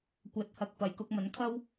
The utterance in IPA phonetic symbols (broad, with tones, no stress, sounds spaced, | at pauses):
kʷ ɐ˨˥ t̚ h ɐ˨ k̚ p ɐ˨˩ j k ʊ˧ k̚ m ɐ˨˥ n kʰ ɐ˥ w